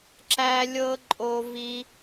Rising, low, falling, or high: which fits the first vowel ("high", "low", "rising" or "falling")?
high